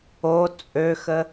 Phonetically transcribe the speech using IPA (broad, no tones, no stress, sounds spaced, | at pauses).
o t͡sʼ ø x ə